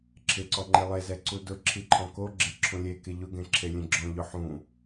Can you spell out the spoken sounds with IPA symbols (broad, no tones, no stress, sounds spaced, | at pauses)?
ǁʰ ɪ ǀ ɔ ŋ͡ǃ e lˠ e z ɛ ǀ u d ʊ ǁʰ i ǃʰ ɔ̃ k o ɡ͡ǁ e ǁʰ ũ lʲ e k e ʎ ʊ ɡ ẽ ǁʰ e lʲ ẽ ɡ͡ǁ ɔ̃ ʎ ʊ ħ ũ